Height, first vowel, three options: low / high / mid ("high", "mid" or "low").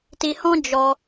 high